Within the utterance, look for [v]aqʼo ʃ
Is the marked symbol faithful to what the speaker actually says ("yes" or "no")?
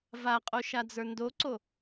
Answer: yes